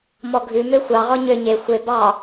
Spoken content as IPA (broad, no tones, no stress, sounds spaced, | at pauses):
m ɔ ɡʱ ʉ m ø xʷ ɑ ʁ ɔ ɲ ø ɲ e xʷ e b ɑ